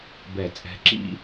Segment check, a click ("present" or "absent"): present